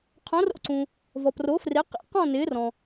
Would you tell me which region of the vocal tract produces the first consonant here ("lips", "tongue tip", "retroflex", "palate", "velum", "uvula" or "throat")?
uvula